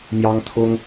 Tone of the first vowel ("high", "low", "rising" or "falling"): high